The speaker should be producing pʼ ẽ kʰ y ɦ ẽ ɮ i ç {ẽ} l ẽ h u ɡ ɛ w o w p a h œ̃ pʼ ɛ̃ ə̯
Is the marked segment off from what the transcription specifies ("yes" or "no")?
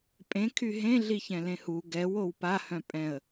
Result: yes